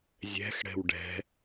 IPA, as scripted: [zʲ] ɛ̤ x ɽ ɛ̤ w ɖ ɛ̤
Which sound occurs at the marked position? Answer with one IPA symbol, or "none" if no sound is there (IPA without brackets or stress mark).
zʲ